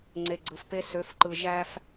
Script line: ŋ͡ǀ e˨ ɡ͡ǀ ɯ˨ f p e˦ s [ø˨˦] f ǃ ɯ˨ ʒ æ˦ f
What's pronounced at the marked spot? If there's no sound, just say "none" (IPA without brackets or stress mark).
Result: ø˨˦